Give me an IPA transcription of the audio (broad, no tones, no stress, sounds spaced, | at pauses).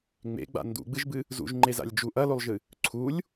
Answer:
ŋ͡m ḛ ɡ͡b a̰ n d ṵ ɡ͡b ɨ ʒ b ɨ | z ṵ ʒ ŋ͡ǃ e z a̰ lʲ d͡ʒ u ʔ ɐ l o lˠ ʒ ɨ | ǀʰ u lʲ